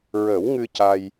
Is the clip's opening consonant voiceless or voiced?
voiced